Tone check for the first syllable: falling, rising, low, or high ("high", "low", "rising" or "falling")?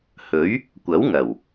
rising